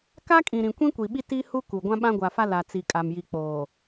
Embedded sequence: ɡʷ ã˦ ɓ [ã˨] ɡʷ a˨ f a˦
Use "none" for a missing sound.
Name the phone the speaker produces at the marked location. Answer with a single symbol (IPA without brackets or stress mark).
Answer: ã˦